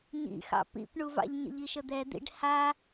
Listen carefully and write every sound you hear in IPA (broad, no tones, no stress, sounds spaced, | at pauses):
ɲ ḭ x ɑ̰ p ḭ p ɳ u v ɑ̰ ʎ ɲ ə̰ ʎ i ʃ ə d̪ ɛ d̪ ḭ ɖ h a